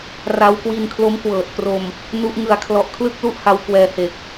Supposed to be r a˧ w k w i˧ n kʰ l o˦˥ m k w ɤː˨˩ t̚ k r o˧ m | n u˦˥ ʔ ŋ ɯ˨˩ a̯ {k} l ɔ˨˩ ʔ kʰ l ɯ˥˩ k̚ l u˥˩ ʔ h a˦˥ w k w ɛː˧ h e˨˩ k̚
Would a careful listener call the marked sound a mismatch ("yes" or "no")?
yes